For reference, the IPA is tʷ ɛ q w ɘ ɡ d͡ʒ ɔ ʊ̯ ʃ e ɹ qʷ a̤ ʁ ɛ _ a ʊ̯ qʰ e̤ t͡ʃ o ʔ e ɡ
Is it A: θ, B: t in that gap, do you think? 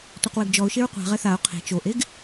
A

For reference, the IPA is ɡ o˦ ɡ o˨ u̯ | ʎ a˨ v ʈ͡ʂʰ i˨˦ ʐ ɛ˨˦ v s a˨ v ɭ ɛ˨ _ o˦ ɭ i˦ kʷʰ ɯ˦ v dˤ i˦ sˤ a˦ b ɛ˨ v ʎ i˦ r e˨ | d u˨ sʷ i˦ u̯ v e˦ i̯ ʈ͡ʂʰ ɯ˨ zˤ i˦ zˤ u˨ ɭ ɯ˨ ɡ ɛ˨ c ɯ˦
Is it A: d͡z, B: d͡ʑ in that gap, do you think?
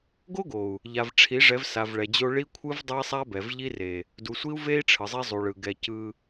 B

